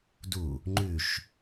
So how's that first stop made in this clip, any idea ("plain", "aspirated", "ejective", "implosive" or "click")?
plain